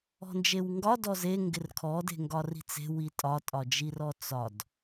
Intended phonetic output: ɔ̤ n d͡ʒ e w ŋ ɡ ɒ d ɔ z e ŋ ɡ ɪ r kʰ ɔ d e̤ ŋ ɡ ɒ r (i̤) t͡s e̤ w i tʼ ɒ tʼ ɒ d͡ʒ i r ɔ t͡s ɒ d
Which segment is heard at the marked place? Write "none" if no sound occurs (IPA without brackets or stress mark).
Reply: i̤